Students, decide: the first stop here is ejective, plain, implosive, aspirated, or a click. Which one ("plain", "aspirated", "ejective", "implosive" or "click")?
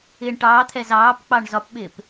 plain